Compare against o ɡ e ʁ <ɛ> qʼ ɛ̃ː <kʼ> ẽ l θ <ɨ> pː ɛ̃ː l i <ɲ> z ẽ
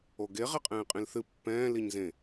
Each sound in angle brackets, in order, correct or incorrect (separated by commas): correct, incorrect, correct, correct